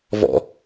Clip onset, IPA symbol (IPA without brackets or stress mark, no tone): v